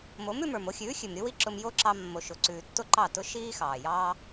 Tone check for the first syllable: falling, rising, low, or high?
rising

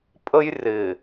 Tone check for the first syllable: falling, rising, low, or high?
high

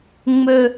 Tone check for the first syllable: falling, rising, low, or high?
low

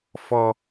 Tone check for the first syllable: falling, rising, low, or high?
high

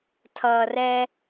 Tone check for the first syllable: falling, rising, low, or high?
low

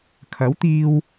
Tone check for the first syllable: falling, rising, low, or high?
rising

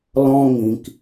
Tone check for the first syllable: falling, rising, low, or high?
high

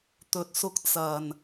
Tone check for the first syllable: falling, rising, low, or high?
low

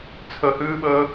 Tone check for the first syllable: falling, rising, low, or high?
low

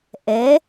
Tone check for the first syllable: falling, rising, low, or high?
rising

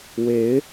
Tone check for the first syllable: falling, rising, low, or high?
rising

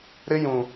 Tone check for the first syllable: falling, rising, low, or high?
high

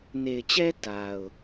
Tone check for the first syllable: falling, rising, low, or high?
low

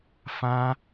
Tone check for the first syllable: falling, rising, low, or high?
high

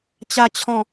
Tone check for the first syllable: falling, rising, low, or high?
low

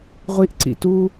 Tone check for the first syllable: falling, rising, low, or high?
high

